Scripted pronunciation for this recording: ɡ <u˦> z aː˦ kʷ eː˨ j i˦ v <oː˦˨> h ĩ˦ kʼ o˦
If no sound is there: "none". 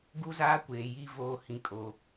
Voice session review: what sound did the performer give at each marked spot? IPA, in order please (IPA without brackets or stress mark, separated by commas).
u˦, oː˦